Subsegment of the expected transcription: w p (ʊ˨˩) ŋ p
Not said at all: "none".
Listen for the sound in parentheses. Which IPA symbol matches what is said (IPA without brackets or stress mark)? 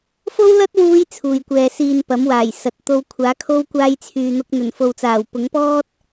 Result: ʊ˨˥